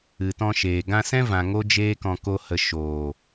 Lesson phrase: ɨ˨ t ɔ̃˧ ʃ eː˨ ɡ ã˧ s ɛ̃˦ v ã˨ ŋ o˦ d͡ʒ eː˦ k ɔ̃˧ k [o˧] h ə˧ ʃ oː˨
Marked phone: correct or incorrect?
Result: incorrect